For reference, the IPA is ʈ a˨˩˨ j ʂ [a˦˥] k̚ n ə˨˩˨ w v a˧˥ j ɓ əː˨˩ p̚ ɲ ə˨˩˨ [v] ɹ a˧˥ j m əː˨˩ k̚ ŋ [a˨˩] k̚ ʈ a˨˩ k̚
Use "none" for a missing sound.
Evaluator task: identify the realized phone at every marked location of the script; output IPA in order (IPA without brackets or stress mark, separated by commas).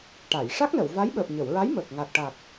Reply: a˦˥, w, a˨˩